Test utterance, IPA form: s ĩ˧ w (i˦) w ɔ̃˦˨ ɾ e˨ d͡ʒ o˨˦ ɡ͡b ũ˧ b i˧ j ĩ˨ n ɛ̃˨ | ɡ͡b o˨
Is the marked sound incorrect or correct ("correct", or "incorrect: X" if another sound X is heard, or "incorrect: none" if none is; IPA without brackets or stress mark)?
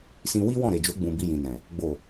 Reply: correct